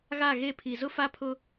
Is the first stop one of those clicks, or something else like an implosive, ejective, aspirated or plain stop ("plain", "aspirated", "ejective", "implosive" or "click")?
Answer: aspirated